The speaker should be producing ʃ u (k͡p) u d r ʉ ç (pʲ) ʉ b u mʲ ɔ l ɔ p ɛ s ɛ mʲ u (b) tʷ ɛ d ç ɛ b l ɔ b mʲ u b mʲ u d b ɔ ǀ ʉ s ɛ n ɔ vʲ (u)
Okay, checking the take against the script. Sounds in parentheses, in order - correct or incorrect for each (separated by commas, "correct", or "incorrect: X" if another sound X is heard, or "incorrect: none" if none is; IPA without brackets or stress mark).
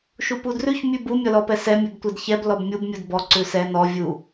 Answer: incorrect: p, incorrect: mʲ, correct, correct